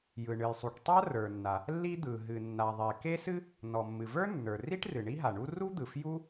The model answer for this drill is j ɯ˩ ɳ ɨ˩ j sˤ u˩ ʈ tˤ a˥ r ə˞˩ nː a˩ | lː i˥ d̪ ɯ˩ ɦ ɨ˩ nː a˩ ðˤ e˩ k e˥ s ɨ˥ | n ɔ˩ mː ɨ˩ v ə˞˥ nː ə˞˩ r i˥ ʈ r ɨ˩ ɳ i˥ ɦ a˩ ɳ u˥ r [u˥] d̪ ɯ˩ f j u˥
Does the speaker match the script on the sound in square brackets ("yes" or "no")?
yes